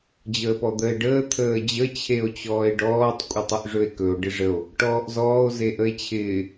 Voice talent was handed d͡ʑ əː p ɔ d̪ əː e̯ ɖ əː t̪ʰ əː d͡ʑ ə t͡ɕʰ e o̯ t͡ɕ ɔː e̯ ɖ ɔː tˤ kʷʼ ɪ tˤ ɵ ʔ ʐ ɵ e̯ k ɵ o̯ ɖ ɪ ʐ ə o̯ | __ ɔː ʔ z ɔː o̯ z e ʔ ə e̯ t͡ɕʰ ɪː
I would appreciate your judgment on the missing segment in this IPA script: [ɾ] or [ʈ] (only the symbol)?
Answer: ʈ